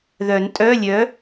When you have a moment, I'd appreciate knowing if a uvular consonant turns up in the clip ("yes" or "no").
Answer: no